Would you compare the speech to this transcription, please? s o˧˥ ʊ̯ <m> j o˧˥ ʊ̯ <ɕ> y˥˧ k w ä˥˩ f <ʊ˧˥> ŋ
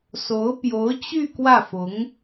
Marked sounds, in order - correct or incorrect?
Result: incorrect: p, incorrect: t͡ɕ, correct

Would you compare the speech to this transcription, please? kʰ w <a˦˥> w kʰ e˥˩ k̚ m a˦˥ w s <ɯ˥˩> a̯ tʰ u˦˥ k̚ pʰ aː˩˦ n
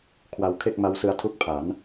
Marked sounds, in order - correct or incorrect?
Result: correct, incorrect: ɯ˧

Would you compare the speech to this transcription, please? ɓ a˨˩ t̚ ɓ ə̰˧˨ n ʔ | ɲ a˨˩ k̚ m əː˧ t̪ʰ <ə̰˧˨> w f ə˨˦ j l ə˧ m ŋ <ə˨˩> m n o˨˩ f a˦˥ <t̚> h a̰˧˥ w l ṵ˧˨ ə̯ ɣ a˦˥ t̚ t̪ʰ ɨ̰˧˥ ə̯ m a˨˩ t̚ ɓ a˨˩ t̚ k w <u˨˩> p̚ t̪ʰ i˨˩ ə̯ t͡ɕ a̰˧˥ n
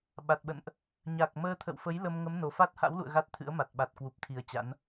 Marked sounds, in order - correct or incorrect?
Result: correct, incorrect: ə˨˦, correct, correct

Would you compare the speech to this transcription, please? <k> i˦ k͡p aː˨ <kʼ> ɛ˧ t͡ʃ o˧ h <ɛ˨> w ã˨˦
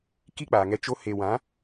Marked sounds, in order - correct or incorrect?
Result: correct, incorrect: ŋ, incorrect: e˨

